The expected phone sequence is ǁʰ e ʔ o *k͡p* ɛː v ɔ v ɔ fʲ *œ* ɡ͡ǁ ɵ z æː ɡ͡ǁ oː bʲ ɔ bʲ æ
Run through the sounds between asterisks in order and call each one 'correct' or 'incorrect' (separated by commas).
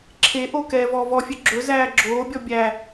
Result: incorrect, correct